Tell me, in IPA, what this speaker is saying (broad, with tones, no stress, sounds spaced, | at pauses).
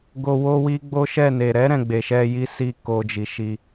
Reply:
ɡ o˨ w o˧ w i˧ ɡ͡b o˦ ʃ ɛ˦˨ n e˨ ɾ ɛ˨˦ ɾ ɛ̃˦˨ ɡ͡b e˨ ʃ ɛ˧ j i˦ s i˦˨ k o˧ d͡ʒ i˨ ʃ i˧